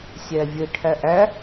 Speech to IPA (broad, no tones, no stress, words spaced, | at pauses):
sʲævʲɘ ʈʰæʔæ